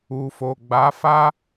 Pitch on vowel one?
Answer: low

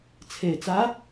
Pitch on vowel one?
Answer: low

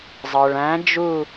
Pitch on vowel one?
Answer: low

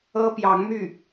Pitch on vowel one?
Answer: high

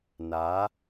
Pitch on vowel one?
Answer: rising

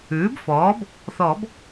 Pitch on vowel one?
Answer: rising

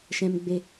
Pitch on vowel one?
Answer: low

